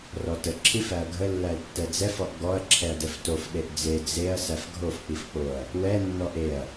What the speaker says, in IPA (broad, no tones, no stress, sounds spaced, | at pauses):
r ɔ t ə ǁʰ i f æ ɐ̯ ɡʱ ə lː æ l tː ɛ d͡z ɛ f ɔ ʔ ɡ ɔ ɐ̯ ǁʰ ɛ ɐ̯ d ɛ f t o f ɗ e ʔ d͡z e d͡z e ɐ̯ s æ f ɡʱ o f k͡p i f k͡p o ɐ̯ | w ɛ nː ɔ ʔ e ɐ̯